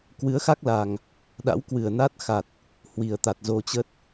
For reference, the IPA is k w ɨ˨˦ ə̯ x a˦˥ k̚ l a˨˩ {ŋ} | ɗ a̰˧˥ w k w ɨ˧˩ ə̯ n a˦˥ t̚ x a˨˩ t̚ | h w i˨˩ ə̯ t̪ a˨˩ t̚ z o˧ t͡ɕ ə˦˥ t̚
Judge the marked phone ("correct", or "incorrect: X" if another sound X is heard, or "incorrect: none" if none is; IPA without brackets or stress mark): correct